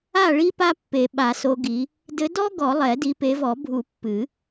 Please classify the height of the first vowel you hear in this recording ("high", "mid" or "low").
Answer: low